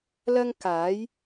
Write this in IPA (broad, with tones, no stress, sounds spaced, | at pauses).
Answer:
l ɐ˥ ŋ k aː˨˥ j